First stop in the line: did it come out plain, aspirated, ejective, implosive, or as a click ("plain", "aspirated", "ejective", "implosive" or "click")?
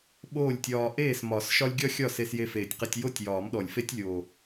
implosive